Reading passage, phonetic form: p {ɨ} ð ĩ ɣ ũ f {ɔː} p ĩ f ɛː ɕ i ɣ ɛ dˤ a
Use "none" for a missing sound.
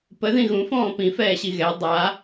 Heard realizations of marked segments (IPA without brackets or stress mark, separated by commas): ə, ɔ̃ː